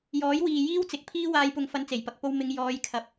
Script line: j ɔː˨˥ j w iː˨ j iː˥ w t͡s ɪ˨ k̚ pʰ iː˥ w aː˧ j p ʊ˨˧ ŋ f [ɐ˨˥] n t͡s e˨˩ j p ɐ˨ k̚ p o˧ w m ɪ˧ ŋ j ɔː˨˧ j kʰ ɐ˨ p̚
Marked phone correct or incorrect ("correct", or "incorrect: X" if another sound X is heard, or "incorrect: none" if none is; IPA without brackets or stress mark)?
incorrect: ɐ˧